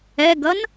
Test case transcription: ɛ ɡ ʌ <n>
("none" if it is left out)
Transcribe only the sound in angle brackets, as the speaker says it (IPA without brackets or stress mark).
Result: n